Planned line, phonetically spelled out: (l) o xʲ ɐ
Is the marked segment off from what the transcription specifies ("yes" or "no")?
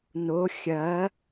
yes